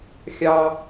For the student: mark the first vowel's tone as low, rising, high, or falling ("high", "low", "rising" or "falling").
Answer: low